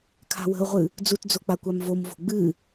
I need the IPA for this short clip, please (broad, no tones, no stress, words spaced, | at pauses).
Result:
kʰa̤wə̤ʊ̯ʁʷɨ | d͡zutd͡zo k͡pakʷamvomvo̤ ɡ͡bɨ